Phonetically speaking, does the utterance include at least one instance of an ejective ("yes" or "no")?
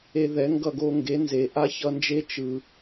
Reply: no